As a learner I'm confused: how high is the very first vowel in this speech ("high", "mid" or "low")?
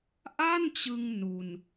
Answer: low